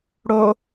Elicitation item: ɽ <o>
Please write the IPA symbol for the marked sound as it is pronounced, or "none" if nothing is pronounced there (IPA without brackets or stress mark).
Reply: o